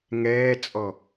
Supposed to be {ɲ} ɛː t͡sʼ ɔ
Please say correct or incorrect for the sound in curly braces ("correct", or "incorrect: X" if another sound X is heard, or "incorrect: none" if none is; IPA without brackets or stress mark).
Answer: incorrect: ŋ